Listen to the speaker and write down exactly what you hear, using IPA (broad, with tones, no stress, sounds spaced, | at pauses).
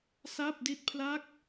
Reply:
s a˥˩ p̚ d i˥˩ t̚ pʰ l a˥˩ k̚